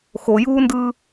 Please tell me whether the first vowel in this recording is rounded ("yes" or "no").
yes